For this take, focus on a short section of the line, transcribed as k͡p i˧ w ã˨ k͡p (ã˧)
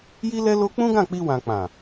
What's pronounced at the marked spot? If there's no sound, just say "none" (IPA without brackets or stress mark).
ã˨